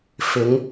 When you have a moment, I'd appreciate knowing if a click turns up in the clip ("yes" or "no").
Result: no